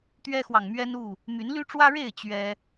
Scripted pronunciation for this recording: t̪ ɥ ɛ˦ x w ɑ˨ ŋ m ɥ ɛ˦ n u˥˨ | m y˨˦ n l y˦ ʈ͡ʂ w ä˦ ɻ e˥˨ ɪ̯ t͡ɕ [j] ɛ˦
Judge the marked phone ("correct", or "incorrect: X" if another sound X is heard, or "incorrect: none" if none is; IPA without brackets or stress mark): incorrect: ɥ